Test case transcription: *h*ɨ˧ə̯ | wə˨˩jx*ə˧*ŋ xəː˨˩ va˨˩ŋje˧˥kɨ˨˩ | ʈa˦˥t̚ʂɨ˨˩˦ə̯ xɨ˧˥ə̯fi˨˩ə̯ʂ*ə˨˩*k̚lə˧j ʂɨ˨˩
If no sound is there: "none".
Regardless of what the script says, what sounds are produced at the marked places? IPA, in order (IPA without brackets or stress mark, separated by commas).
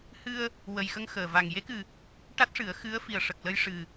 h, ə˧, ə˨˩